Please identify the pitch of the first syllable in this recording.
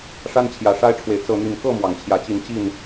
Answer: high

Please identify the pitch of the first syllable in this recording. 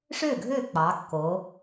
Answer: falling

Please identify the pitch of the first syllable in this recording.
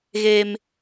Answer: high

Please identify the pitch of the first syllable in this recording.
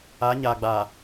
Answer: rising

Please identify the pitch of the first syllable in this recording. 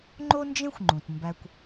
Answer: high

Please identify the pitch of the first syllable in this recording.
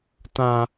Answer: low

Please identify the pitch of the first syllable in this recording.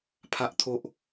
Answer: low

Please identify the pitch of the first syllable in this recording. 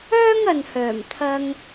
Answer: high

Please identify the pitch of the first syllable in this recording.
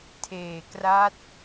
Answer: low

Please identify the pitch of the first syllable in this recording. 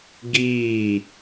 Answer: falling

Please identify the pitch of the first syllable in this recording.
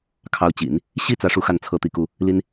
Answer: rising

